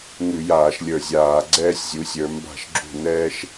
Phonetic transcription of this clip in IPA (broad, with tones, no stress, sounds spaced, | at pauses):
ŋ ʉ˧˩˧ j aː˧˩˧ ʃ lʲ ə˞˧˩ zʲ aː˧˩˧ ɡ͡ǀ ɛː˥ sʲ zʲ u˨˦ sʲ ə˞˨˦ m b a̤˥˩ ʃ ɡ͡ǁ ṳ˥˩ n ɛː˥ ʃ